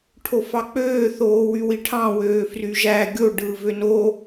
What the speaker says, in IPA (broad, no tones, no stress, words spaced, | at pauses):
ʈʰofɑk͡pøː θoːwywiʈʰɑ̃ wøːfryʒæ ɡʲo ɖɯːvøno